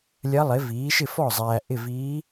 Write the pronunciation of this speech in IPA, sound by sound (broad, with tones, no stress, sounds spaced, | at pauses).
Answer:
lʲ ɐ˧˥ lˠ ɪ˩˥ v iː˩˥ ʃ ɪ˥˩ f ɔ˥˩ zˤ æː˨ ʔ ɪ˥˩ v iː˧˥